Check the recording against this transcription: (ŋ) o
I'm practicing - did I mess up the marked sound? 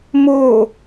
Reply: yes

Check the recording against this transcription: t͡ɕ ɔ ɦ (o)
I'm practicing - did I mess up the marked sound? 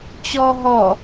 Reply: yes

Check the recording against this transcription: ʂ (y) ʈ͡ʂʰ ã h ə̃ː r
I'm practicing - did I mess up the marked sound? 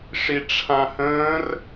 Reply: yes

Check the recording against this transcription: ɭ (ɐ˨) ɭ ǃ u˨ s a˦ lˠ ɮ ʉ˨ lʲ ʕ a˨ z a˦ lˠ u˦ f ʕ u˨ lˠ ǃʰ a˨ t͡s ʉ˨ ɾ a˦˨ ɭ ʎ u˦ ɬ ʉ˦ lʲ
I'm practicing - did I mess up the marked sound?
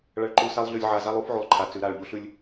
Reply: no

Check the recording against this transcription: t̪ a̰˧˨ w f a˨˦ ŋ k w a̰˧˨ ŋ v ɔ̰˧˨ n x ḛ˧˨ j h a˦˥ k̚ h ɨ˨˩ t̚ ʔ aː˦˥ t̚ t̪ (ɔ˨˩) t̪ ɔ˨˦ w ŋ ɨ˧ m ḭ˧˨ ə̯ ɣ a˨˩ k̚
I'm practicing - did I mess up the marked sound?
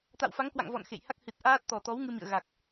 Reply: no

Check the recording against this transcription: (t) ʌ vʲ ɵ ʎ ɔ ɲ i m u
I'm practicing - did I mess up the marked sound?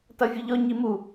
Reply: no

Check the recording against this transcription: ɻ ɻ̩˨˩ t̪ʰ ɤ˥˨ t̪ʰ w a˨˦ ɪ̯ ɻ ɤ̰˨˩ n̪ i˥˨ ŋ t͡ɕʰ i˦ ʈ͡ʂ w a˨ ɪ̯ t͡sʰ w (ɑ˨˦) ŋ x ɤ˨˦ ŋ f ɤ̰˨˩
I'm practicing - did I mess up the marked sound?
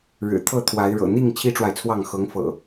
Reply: yes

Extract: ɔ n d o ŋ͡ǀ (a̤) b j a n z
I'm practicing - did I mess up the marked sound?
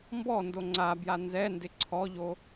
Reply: yes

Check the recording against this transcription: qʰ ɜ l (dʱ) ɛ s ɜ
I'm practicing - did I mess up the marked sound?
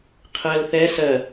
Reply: yes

